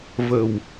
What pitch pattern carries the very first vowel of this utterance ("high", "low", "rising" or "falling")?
low